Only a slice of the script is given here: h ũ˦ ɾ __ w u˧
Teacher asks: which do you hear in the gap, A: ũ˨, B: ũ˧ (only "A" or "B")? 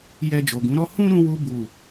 B